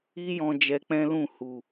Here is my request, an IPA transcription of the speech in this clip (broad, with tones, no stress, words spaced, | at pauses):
i˦jɔ̃˧ d͡ʒɛ˧k͡pɛ̃˦lũ˦˨hu˨